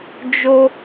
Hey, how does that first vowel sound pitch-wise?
high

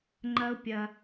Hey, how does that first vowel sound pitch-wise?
high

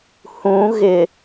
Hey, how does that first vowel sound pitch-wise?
rising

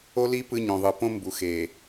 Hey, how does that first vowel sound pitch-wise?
high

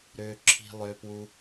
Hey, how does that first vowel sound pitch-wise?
low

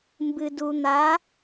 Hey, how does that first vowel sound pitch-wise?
low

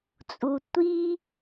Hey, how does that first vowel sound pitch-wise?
low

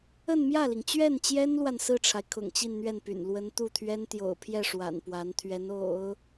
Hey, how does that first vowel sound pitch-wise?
falling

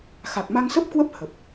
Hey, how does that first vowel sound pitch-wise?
low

